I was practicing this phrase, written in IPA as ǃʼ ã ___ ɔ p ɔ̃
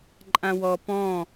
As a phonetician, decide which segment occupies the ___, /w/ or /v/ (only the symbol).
w